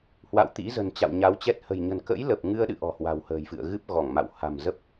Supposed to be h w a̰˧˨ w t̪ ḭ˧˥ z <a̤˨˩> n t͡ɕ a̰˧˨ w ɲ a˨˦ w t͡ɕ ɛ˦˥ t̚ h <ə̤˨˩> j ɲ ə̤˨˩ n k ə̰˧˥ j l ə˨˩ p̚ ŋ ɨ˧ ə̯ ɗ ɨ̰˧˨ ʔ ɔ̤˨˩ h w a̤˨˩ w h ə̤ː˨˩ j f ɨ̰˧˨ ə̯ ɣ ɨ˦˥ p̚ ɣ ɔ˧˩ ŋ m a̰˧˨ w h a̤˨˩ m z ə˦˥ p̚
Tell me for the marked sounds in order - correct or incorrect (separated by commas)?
incorrect, correct